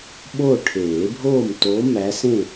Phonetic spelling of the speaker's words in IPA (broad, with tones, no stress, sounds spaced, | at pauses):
ɓ o˥˨ ʈʰ eː˨˩˦ bʱ oː˥˨ m t o˧˥ m æ˧˥ s ẽ˥˨